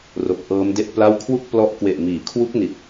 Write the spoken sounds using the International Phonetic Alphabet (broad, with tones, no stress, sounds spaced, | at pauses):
r o˨˩ k̚ ʔ ɤː˦˥ m d e˥˩ ʔ p l a˥˩ w kʰ w u˥˩ k̚ p l ɔ˦˥ ʔ k w e˨˩ ʔ m iː˩˦ kʰ w u˦˥ k̚ n i˨˩ t̚